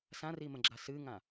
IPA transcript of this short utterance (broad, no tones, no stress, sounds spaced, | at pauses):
s ã r i m ə̃ ɡ͡ǁ a s ɨ ŋ ã